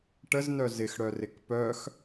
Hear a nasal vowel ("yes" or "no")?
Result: no